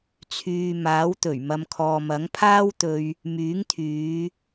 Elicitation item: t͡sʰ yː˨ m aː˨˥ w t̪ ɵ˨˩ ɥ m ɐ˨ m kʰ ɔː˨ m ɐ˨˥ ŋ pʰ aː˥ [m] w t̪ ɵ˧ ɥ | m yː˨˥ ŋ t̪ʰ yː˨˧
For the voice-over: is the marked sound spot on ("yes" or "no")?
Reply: no